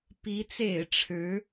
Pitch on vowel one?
rising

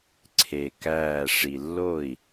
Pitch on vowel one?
low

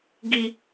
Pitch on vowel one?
high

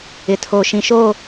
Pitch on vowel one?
low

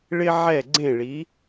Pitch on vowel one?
high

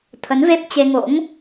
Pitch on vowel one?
rising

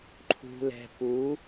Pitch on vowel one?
low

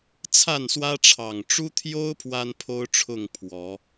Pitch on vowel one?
falling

